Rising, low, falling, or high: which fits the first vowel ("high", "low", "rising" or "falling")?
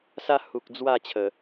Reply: high